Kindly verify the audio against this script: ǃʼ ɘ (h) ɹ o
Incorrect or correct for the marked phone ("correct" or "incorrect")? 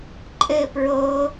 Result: incorrect